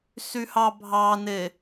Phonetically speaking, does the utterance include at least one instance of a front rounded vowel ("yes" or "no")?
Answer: yes